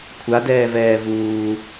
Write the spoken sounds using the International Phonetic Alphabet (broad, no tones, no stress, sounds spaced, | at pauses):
kʷʰ a d ɛː v ɛː v uː